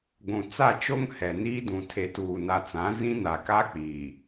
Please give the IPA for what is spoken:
ɡʷũ˨ t͡sa˦˨t͡ʃo˦ŋ hɛ˨ niː˦dũ˨ tʰe˨tuː˨na˨t͡sã˨˦ zĩ˦na˨ka˦ k͡pi˨

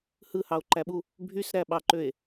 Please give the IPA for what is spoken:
hɯhɑo̯ǃæɓu | bʱysɾæɓɑǃøe̯

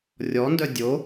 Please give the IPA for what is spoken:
rʲɔndœ dʲo

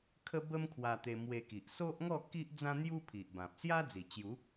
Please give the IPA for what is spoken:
kʰə˦bə˦m kʰwa˧t̪e˧mwe˧ki˨ʔ so˦ʔŋɔ˥˧ ki˦ʔ d͡zã˦n̪ju˦ pʰi˨ʔbã˨p̚ sja˦d͡zi˨˩t͡ɕju˨˦

